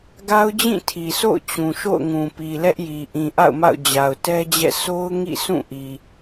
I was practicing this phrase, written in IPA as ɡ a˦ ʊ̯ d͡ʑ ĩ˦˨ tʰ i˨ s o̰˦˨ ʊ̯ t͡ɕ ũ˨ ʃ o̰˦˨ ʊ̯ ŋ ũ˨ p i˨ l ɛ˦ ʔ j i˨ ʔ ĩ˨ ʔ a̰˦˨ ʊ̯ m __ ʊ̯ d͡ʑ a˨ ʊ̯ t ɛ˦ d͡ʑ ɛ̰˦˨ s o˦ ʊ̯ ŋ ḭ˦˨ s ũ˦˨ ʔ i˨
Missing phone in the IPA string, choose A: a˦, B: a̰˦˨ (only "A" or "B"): B